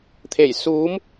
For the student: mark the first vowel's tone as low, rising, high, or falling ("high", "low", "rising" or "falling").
low